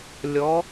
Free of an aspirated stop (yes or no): yes